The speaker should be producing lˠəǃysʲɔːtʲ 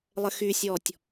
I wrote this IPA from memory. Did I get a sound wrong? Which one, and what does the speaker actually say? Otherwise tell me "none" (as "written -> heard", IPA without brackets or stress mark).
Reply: ǃ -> x